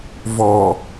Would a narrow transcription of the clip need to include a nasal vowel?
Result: no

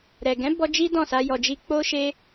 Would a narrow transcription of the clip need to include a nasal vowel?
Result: yes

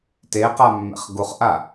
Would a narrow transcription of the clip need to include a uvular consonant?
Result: yes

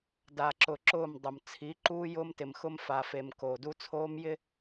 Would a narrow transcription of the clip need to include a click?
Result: yes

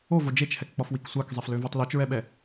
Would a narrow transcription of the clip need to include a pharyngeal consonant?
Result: no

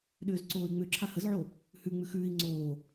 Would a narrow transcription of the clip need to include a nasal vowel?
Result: no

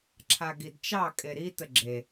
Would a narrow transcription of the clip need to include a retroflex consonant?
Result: no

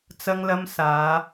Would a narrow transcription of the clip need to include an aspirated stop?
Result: no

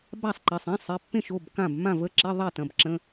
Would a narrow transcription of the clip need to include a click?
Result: yes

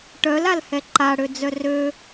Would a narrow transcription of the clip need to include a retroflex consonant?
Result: yes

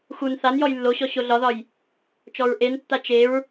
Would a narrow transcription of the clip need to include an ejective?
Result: no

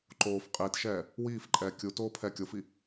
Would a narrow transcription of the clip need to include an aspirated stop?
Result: yes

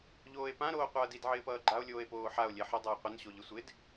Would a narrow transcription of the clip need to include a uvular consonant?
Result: yes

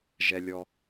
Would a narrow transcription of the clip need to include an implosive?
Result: no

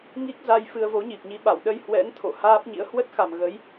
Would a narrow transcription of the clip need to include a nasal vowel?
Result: no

